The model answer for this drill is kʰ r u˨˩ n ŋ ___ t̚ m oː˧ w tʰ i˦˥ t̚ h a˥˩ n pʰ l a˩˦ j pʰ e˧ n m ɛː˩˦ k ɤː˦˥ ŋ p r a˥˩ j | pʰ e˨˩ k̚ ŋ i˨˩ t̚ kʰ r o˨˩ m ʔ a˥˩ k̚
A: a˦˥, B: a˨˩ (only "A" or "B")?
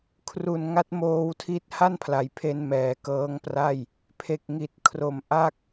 A